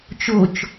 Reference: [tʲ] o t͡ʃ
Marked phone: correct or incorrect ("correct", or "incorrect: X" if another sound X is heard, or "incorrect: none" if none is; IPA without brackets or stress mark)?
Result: incorrect: t͡ʃ